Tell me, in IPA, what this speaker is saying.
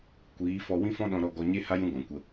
kʷiː˨˦fɔ˧ wĩ˦fɔ̃˦ɗɔ̃˧ ɾɔ˧ɡɔ˧ɲe˦ ha˦jũ˧ ɡɔ̃˨kʷə˧

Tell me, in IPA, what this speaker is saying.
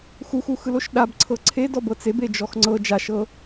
xuxuxɯl oʃɗab ǀʰɤǀʰedɔ bɤt͡seb ed͡ʒɔxŋ͡ǀɤ d͡ʒaʃɤ

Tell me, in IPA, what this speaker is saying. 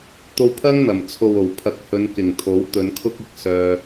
t̪o˧wpʰɐ˥ŋn̪ɐ˨˩m t͡sʰo˨wo˨˩wpʰɐ˨˥k̚ hɵ˨˧nkɪ˨˩ŋ t̪ʰo˨˥wt̪ɵ˨˧nkʰʊ˥k̚ɪ˨k̚ sœː˧

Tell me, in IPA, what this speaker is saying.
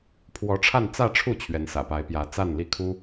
pʰwɔ˧˥ʈ͡ʂʰa˥˧n t͡sä˥˧ʈ͡ʂʰu˥˩ t͡ɕʰɥɛ˧˥nsä̰˨˩pa˧˥ɪ̯pjä˧˥ t͡sa˥˧nli˥˩kʰu˥

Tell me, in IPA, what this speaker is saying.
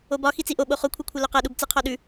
obɒ xit͡siʔo ɓoχokʷʰɯkʷʰɐ loqɐɗub t͡sɯqʰɔɗʉ

